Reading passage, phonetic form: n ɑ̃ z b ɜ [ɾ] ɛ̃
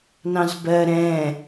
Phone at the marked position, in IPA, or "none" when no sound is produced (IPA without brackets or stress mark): ɾ